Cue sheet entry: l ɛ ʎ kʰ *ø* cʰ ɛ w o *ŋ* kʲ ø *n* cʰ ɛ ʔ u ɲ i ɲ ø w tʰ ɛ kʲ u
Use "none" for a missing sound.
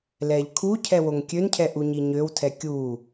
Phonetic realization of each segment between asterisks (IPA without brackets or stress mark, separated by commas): u, ŋ, n